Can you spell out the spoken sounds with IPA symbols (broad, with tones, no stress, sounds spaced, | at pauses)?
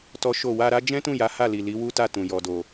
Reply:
t ɔ˦ ʃ o˦˨ w a˧ ɾ a˦ d͡ʒ ɛ̃˦ t ũ˦˨ j a˨˦ h a˦˨ l i˨ l i˨˦ w u˦ t a˦˨ t ũ˨ j ɔ˨ d o˨